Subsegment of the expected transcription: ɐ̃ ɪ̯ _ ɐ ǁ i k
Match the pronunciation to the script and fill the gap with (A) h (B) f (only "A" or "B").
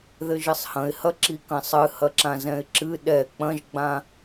A